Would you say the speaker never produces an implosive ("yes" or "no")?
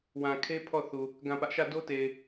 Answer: yes